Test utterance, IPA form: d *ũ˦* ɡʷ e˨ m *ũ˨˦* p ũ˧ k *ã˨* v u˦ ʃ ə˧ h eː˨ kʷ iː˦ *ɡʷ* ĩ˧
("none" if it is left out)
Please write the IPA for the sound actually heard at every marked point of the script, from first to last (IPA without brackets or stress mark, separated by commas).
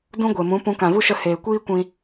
ũ˦, ũ˨˦, ã˨, kʷ